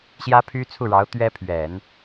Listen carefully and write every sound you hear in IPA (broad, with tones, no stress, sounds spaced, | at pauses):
ɕ j ä˥ pʰ y˥ t͡sʰ u˥˩ ɻ ɑ˧˥ ʊ̯ t̪ ɥ ɛ˥ pʰ ɥ ɛ˨˩˦ n